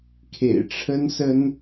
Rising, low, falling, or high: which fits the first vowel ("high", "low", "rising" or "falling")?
low